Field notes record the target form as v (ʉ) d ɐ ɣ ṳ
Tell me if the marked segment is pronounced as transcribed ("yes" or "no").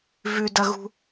yes